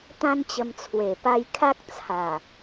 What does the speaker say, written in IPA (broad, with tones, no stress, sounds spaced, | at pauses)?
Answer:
t̪ ã˦ n t͡ɕ ə˧ m t͡sʰ w e˨˩ p a˧ j kʰ a˦ k̚ t͡sʰ a˨˩